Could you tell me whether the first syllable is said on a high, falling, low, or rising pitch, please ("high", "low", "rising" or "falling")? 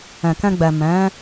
low